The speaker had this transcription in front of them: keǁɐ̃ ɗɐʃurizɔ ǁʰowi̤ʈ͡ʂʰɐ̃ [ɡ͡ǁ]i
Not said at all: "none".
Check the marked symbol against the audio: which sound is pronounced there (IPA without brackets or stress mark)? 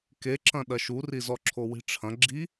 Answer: ɡ͡ǁ